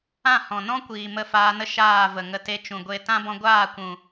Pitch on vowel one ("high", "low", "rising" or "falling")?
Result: falling